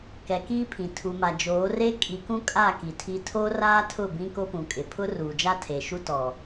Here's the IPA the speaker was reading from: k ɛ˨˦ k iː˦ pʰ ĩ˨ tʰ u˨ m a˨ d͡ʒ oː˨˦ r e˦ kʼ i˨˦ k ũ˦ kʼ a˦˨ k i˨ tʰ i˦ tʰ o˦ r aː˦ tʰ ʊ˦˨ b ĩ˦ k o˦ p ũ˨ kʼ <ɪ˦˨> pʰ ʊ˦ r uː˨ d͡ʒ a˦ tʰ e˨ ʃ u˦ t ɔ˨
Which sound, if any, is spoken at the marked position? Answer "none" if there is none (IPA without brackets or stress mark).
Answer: ɪ˨